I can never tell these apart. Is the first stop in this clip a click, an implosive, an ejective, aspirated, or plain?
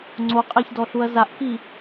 click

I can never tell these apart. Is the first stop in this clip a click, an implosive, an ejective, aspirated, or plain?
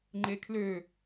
click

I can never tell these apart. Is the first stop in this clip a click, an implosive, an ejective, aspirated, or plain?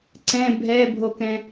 click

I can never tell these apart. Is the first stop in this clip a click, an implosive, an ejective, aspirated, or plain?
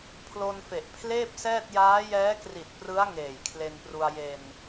aspirated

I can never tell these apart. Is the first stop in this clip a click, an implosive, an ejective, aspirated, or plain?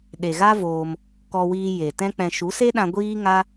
implosive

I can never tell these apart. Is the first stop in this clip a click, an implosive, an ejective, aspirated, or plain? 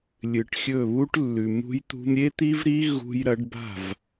plain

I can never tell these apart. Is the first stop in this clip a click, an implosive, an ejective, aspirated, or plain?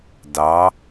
plain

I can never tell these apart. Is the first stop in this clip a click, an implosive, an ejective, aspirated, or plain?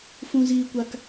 plain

